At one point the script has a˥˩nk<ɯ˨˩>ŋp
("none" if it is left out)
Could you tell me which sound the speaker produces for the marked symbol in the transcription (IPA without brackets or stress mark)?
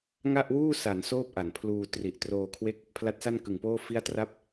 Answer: ɯ˨˩